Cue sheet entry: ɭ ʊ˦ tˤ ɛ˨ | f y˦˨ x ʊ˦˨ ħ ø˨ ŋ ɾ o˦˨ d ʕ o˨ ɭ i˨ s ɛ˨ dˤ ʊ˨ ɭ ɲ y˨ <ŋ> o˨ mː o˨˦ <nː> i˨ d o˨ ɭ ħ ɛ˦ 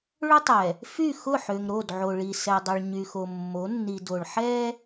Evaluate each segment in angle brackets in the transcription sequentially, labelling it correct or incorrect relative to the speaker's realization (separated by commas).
incorrect, correct